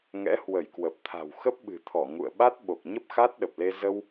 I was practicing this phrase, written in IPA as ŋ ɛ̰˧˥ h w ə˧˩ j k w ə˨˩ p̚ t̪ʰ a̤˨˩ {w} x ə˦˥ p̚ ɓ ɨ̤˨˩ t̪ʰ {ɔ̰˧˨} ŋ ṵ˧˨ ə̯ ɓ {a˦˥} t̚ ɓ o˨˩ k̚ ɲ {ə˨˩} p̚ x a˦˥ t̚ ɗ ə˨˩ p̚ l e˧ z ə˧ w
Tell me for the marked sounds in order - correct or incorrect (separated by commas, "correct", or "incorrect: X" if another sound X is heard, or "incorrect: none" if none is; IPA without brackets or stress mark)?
correct, incorrect: ɔ˧˩, correct, incorrect: ə˦˥